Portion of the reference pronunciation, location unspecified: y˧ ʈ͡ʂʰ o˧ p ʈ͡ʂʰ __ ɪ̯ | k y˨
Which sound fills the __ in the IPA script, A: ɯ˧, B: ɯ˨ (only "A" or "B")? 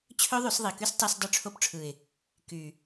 B